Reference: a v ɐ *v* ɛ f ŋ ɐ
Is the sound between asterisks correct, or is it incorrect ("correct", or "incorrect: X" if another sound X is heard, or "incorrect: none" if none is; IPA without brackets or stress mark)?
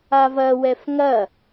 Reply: incorrect: w